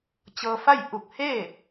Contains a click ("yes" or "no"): no